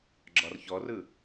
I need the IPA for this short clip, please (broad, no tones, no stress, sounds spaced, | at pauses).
ɡ͡ǁ ɒ r ç ɔ r ɯ